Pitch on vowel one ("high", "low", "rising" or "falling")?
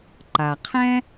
low